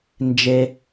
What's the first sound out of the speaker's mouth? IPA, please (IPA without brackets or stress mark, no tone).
n